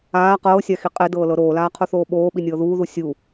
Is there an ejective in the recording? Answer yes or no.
yes